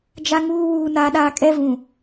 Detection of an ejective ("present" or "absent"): present